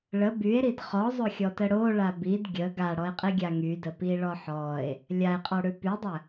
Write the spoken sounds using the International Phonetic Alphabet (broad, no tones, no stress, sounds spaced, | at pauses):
ɭ ə b y e̯ ɾ i d χ ɔ zˤ o xʲ ɔ t ə ɽ o ɭ a b i d ɡʲ ə ɡ a ɽ ɔ e̯ qʼ i ɡʲ a ŋ y d ə p i ɭ ɔ ħ ɔ e̯ | lʲ a e̯ qʼ ɔ ɽ ʉ p y dˤ ə